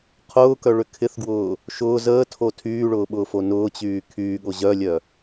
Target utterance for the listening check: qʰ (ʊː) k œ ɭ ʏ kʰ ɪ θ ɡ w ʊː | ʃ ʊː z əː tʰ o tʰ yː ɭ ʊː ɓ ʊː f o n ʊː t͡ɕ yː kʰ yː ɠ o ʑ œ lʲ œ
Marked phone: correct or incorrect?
correct